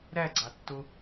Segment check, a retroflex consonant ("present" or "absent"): absent